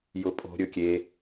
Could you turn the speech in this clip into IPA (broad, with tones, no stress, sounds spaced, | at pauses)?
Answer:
j ʊ˩ pʼ o̤˩ ɾʲ ɵ˩ kʲ e˩